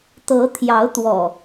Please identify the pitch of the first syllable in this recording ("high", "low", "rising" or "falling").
rising